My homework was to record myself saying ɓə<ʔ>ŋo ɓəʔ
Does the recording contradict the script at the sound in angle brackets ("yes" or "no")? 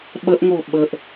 no